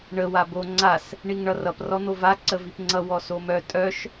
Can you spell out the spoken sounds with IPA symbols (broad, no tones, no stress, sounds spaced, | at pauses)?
ɳ ə w a b o ŋ͡ǀ a s | ɳ i ŋ ɳ ʌ r ʌ p r ɔ n̪ o v a ǀ ə v i p ŋ͡ǀ ʌ w ɔ s o m œ tʼ œ ʃ